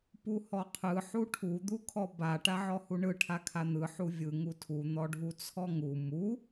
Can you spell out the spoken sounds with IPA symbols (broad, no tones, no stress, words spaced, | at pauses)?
puhɔqʰɯ ħuʈʰu d̪ukʰɔba ʈaʕɔhuɳɯ ʈʰakʰan̪ɯ ħuvʲɯ ŋutʰu n̪ɔɖʱut͡sʰɔŋu mu